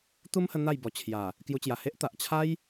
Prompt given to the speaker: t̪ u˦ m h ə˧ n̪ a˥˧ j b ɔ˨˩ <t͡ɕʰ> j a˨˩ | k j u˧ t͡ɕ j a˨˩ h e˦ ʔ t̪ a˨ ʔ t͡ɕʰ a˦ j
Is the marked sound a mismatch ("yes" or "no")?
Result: no